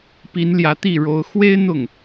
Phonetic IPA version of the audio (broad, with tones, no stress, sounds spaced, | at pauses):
p i˧˥ n l j ä˧˥ t̪ i˥˩ ɻ o˥ ʊ̯ x w e˥ ɪ̯ n̪ ʊ˥˩ ŋ